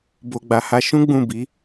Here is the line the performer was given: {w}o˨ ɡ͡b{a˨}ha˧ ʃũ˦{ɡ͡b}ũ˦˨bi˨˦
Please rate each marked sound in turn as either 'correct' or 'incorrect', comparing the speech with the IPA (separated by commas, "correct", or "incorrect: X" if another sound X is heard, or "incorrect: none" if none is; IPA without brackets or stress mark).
incorrect: b, correct, correct